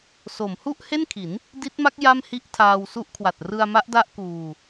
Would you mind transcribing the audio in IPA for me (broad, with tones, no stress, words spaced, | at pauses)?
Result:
so˩˦m hu˥˩ʔhe˥˩nkʰi˩˦n | di˦˥t̚ma˦˥k̚ ja˥˩mhi˥˩ʔtʰaː˧w su˦˥ʔkʰwa˨˩t̚ rɯ˧a̯ma˦˥ʔda˦˥ʔ kuː˧